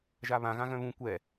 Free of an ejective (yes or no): yes